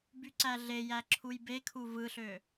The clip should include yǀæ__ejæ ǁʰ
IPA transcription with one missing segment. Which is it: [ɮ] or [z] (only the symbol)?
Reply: ɮ